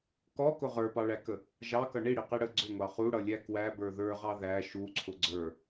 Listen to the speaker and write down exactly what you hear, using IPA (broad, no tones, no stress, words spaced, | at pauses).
kɔkʊ ʁə˞pɑɭækə | ʒɑkʌ ɳiɽiqi ɽə ɡ͡ǀʊŋʷɑ χuɽʌlʲæ kwæbə˞ ðə˞ʁɑ ðæ ʃuǀʰʊ ɡ͡ǀə˞